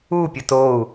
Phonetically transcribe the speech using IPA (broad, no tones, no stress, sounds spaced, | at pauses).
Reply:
u pʲ ə t o u̯